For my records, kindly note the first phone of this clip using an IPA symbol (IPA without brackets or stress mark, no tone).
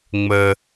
ŋ͡m